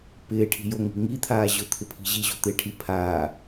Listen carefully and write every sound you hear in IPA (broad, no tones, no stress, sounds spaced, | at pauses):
p ɪː ʈʰ i̤ j o ŋ i̤ ŋ i t̪ʰ aː ʑ ʊ t̪ʰ ɪ pʰ i̤ ʑ i ʑ o̤ t̪ ɪː ʈʰ i pʰ aː